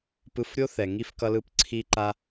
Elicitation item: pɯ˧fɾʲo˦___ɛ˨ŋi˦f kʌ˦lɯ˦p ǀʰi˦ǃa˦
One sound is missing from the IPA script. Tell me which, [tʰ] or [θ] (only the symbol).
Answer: θ